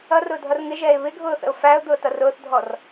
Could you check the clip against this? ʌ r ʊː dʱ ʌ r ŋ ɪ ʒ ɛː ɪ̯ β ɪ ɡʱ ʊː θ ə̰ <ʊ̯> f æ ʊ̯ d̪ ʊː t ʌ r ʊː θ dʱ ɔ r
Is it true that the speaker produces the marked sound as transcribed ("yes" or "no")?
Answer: yes